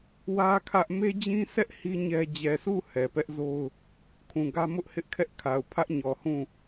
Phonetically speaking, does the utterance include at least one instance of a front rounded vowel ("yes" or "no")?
no